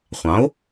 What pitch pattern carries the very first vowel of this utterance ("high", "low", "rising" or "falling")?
rising